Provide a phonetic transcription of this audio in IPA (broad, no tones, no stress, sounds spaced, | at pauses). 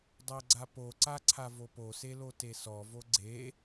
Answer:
dˤ ɜ ɡ͡ǀ a p o ǀ a ǀʰ a v o p o s e l o t e s ɔ v o ɡ͡ǀ e